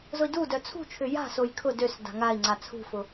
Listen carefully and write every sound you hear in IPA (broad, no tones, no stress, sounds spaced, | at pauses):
z ʊ i̯ d u d œ t͡sʰ ṳ t͡ʃʰ ʏ j a̤ s o j kʰ ʊ d ø s d a̤ ŋ a i̯ ŋ͡ǀ a t͡sʰ ṳ f ʊ